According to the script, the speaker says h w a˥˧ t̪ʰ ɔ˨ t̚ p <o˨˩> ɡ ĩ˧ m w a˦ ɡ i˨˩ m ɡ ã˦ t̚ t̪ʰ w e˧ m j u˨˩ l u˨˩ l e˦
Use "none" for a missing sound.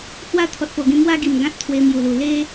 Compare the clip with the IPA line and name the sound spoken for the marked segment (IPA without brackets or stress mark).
o˨˩